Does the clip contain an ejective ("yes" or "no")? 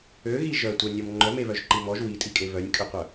yes